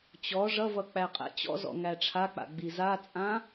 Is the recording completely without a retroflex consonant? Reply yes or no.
no